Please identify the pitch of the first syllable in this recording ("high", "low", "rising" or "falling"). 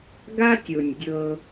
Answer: high